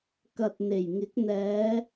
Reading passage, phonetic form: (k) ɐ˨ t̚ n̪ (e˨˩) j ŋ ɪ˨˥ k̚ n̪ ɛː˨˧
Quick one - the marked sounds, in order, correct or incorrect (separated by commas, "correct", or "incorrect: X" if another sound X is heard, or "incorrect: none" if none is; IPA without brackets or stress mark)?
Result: correct, correct